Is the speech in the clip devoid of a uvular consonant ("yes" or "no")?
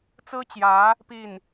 yes